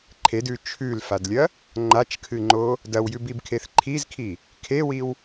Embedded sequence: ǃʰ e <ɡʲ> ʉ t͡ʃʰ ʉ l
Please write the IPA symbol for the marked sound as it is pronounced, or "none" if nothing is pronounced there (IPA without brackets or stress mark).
d